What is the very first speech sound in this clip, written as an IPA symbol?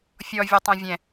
fʲ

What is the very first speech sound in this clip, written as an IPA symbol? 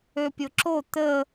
ø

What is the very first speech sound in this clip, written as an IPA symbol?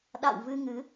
ɗ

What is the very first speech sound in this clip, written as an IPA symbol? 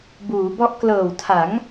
b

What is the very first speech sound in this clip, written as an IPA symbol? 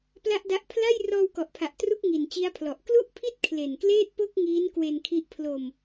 p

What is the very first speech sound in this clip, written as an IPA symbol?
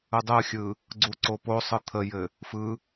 ɯ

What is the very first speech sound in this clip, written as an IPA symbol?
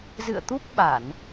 z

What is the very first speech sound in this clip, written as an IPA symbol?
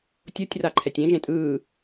tʲ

